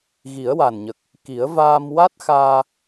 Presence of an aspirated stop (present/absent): absent